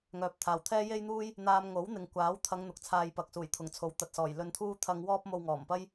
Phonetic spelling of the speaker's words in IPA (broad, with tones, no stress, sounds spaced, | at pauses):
ŋ œː˨ p̚ t̪ʰ aː˨ w t̪ʰ ɛː˥ j e˥ j n̪ uː˥ j | n̪ aː˧ m ŋ o˨˥ w n̪ ɪ˨ ŋ kʷ aː˨˥ w t̪ʰ ɐ˨˧ ŋ n̪ ʊ˨˥ k̚ t͡sʰ aː˧ j p ɐ˨ k̚ s uː˨˩ j t̪ʰ ʊ˨˩ ŋ t͡sʰ o˨˥ w t̪ ɐ˨ t̚ s ɔː˨˩ j l ɵ˧ n t̪ʰ uː˥ t̪ʰ ɐ˧ ŋ w ɔː˥ p̚ m o˧ w ŋ ɔː˨˩ m p ɐ˥ j